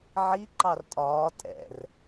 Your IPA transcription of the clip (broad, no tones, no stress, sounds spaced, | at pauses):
ʕ i ǃ ɑ r tʼ ɒː tʼ ɛ̰ r